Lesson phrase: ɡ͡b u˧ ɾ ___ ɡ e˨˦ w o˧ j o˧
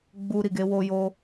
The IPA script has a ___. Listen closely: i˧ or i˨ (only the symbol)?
i˨